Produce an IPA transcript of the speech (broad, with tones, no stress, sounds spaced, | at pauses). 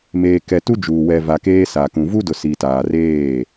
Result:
m eː˨ k ɛ˨ t u˦ d͡ʒ uː˨ w ɛ˨ v a˨ k eː˦ s a˨ k ũ˨ v u˦ d ʊ˨ s i˨ t aː˨ r eː˦˨